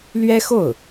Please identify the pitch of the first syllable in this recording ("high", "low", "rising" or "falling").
high